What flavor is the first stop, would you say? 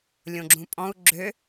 click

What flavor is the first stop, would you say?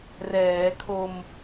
aspirated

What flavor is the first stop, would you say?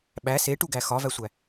implosive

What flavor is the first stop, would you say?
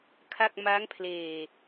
aspirated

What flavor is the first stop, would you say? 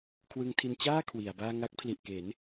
aspirated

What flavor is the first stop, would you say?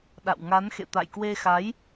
implosive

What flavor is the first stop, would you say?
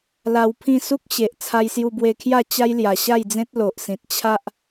aspirated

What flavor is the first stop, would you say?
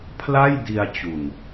aspirated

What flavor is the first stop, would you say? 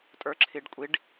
ejective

